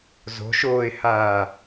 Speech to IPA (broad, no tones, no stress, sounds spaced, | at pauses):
z o̤ ʃ oː ɪ̯ h aː